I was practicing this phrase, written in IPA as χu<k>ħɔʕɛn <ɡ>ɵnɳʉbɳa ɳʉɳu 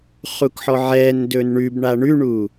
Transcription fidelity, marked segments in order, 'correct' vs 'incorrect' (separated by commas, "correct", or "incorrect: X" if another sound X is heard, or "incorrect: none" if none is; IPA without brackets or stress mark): correct, incorrect: d